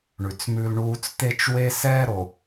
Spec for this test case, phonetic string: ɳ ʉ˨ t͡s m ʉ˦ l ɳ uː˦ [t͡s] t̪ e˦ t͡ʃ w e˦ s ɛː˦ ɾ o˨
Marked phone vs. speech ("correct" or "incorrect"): correct